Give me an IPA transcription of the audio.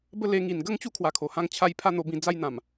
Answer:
b ə˦ l e˧ ŋ i˨˩ n ɡ ə˦ ŋ t͡ɕ u˦ kʰ w a˧ kʰ o˨˩ h ã˥˧ ŋ t͡ɕʰ a˦ j pʰ a˥˧ n̪ o˧ b ĩ˧ d͡z a˦ j n̪ ã˨˩ m

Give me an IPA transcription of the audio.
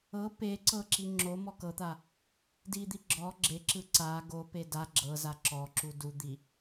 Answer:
ɤ p e ǀ ɤ ǁ i ŋ͡ǁ o m ɔ k ɤ t̪ a | d i d̪ i ɡ͡ǁ ɔ ɡ͡ǁ e ǁ ɯ ǀ a ɡ o p e d a ɡ͡ǁ ɤ z a ǁ ɔ ǁ u d u d̪ i

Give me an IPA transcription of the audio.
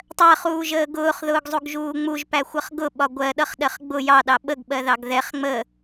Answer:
tˤ ɜ χ uː ʒ əː ɡ ʊː χ ð ʊː ɡ zˤ u ɡ ʒ uː ŋ͡m u ʒ p æ xʷ ʌ χ ɡ ʊ ɓ ɒ ɡʷ ɜ ɗ ʌ χ ɗ ɜ χ ɡ͡b ʊ j ɑ ɗ ɑ ɓ ə ɡ ɓ ɜ ð ɑ ɡ ð ɛ χ ŋ͡m ə

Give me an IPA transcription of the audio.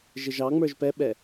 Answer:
ʒ ɪ ʒ ɑ ŋ͡m ə˞ ʒ p ɛ ɓ ɛ

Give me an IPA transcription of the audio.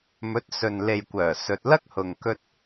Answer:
m ɵ˨˥ t̚ s ɵ˨ n l e˨ j kʷ œː˨˩ s ɵ˨ t̚ l ɐ˥ k̚ h ʊ˨ ŋ k ɵ˧ t̚

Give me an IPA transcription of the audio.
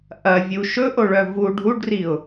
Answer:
ʔ ɐ vʲ u ʃ ɵ ʔ o ɭ œ v u ɖʱ u ɖ r i ʊ̯

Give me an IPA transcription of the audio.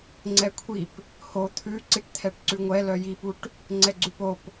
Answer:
ŋ͡ǀ ɛ kʷʰ i p | h o t̪ʰ ʉ ǀ i ʈ t̪ʰ ɛ ʈ ǀ ʉ ŋʷ ɛ l œ j i p u ʈ | ŋ͡ǀ ɛ ɡ͡ǀ ʉ p o p

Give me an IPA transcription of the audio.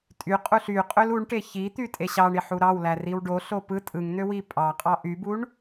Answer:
tʼ y qʼ u ɬ y qʼ ø l u ɳ ʈ e ç i t̪ y tʼ e ɕ ɑ ɳ i ħ u ɾ ɑ w l æ r i w ɖ o ɬ o p ɯ tʼ ɯ ŋ n̪ ø w i pʼ ɑ qʼ ɑ ʔ y b u ɳ

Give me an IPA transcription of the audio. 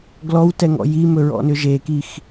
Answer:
ɡ l ɔ w t ɛ ŋ ɔ̰ j i m ɵ ɹ ɔ̰ n ʏ ʒ e k i x

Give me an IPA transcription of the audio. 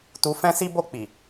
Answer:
t u˧ f ɛ̃˦ s i˦ b o˦˨ k͡p i˨

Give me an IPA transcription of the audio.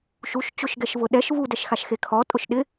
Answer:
ʃ u ʃ t͡ɕ ʊ ʃ ɡ ɛ ʃ v ʊ ɗ ɛ ʃ v u d ɛ ʃ x a ʃ x e kʰ ɔ tʼ ʊ ʃ ɗ ɪ

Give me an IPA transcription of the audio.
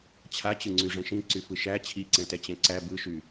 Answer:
t͡ɕʰ a t͡ɕ ɯ ŋ͡ǀ y ʐ ɛ̃ ʃ ĩ ǀ y f ɯ ʃ æ t͡ɕʰ i ǀ ɛ̃ t ɛ t͡ɕ ɛ̃ ǀ æ b ɯ ʃ y

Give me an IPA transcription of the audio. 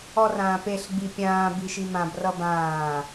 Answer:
ɔ r ãː p e ɬ ɡ͡b i pʲ ãː b i ʃ i m ã b r ʌ b ãː

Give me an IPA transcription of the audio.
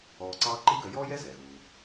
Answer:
ɔː˧ ǀ ɑː˥ ǃ i˥ ɡ œ˧ j ɔː˥ j ɛ˥ z ɛː˩ ɣ uː˩

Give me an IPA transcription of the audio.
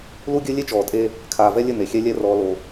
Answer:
l u˦ ɡʲ ɘ˦ lʲ e˦ t͡ʃ ɔː˨ tʼ e˦ | kʰ aː˨ v ɛ˦ lʲ ɘ˦˨ n̪ e˨ xʲ ɛ˦ lʲ ɛ˦ r ɔː˦ l o˦

